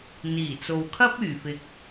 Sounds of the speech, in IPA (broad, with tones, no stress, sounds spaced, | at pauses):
n̪ iː˨˩ t͡s o˨ w kʰ ɐ˥ p̚ yː˨˩ f ɪ˨ k̚